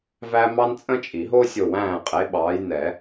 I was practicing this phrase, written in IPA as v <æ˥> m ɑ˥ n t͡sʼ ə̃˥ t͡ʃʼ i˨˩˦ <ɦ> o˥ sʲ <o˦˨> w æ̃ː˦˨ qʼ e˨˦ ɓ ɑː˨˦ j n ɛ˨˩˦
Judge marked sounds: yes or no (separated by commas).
yes, yes, yes